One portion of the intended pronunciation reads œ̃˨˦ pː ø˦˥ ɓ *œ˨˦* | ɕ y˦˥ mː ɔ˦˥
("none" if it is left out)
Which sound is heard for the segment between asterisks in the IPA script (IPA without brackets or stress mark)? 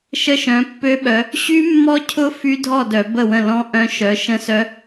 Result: œ˨˦